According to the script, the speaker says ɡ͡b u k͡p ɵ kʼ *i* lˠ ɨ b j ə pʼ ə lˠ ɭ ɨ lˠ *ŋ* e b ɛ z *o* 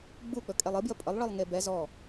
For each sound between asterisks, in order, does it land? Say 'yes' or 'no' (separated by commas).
no, yes, no